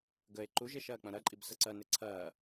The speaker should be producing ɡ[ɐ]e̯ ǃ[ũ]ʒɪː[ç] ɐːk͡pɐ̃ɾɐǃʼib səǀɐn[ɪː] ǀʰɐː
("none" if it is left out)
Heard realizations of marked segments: ə, u, ʃ, ɪ

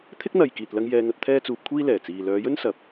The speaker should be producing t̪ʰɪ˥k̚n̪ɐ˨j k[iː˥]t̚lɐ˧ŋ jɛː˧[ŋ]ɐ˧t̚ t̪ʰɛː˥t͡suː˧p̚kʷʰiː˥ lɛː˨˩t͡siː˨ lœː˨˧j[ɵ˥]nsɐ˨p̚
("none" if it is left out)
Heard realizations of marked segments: iː˨, ŋ, ɵ˥

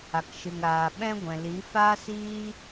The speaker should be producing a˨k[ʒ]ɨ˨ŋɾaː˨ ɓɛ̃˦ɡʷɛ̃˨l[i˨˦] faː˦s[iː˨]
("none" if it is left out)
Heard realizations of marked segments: ʃ, i˨˦, iː˦

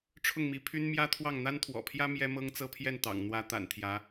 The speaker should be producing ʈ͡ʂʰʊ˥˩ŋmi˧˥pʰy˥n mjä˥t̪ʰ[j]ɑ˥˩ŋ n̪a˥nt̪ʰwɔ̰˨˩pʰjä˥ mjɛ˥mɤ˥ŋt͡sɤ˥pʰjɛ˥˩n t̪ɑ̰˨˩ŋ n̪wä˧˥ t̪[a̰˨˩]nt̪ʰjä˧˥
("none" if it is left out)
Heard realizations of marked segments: w, a̰˨˩

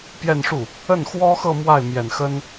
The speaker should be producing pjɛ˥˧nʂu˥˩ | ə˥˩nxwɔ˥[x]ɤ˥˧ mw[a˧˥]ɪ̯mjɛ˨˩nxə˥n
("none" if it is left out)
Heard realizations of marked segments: x, a˥˩

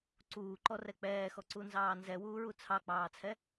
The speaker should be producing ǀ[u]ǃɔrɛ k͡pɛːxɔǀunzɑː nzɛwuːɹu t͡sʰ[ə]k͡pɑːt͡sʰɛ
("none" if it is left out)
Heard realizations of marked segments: uː, ɑ

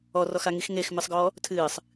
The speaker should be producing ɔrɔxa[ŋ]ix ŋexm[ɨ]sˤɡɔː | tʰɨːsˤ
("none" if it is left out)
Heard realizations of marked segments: ŋ, ɨ

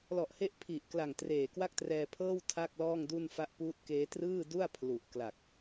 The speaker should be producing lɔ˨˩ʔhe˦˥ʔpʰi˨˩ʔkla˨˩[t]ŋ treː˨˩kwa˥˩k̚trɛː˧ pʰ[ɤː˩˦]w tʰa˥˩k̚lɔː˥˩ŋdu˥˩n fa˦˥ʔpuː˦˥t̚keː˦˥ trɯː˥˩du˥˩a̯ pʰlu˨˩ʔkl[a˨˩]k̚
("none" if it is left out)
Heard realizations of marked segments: none, ɤː˥˩, a˨˩

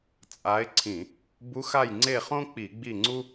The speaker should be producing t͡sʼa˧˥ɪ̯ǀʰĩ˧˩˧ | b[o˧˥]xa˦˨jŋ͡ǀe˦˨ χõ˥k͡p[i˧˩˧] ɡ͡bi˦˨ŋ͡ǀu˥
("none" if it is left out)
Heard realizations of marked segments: u˧˥, i˧˩˧

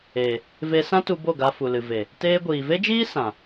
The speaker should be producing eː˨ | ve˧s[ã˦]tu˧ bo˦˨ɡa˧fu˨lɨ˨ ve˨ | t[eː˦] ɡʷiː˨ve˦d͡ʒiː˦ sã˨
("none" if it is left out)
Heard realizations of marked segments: ã˦, eː˦

